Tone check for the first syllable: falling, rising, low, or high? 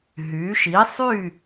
rising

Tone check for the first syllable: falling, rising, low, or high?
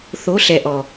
rising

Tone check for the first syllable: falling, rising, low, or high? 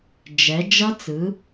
rising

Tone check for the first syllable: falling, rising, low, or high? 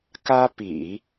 high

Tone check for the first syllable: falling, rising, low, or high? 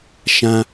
high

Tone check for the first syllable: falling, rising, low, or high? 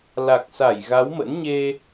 low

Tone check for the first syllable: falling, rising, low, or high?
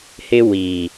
high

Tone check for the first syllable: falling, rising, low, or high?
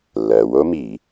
low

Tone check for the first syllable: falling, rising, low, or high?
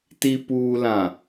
low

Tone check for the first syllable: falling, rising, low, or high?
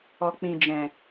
low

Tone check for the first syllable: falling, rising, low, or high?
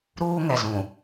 high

